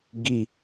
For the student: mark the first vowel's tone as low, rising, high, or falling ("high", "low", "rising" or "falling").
falling